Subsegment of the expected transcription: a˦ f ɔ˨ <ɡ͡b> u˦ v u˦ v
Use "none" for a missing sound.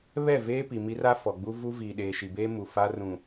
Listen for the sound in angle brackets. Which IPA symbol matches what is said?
ɡ͡b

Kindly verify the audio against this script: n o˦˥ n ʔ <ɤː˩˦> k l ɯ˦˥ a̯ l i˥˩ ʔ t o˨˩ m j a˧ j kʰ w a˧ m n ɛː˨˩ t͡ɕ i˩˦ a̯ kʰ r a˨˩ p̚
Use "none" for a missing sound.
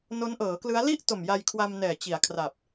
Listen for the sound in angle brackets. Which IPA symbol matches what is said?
ɤː˩˦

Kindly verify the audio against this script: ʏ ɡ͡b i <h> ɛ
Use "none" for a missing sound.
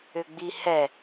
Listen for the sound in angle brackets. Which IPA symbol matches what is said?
h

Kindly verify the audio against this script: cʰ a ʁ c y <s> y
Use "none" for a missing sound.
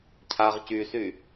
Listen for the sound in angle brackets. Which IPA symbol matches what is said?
s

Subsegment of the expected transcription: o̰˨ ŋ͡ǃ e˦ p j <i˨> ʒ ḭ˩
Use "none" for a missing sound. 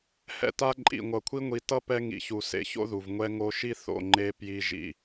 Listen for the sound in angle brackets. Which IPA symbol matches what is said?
i˦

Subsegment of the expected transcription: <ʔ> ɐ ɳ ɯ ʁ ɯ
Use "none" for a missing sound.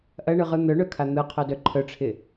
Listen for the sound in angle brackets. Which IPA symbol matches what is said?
ʔ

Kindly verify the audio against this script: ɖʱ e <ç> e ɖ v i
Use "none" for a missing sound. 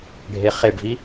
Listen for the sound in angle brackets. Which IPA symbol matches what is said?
χ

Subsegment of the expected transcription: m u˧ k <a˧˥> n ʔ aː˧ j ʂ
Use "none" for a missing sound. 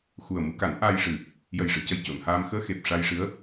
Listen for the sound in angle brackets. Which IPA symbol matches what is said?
a˨˩˦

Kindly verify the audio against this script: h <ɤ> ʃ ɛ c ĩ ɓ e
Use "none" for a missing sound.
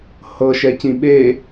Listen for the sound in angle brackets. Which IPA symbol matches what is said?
ɤ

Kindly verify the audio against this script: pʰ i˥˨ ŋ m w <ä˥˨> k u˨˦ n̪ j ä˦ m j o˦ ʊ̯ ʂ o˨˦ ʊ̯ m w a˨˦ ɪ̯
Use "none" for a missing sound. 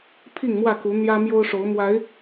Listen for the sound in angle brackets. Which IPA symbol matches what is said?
ä˥˨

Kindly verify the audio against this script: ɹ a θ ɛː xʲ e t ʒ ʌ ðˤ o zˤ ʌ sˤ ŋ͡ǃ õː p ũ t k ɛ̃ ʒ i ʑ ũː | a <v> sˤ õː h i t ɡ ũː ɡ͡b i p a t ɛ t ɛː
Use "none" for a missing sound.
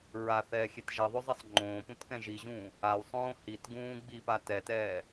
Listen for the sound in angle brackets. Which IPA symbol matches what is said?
w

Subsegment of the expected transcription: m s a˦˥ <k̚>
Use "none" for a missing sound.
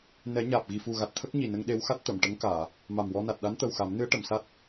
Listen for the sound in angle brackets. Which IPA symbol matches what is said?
t̚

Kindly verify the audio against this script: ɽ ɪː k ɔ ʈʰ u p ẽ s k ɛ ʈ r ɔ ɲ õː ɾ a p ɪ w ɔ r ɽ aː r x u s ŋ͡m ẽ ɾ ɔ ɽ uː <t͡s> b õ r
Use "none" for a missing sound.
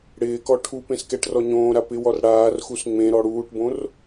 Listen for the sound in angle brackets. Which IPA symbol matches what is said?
ʈ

